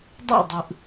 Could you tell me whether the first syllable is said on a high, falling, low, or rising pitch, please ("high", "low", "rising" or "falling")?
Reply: falling